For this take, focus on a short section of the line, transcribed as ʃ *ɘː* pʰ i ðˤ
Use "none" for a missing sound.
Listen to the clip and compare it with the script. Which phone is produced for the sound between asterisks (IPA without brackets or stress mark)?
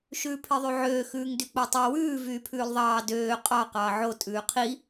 ʉː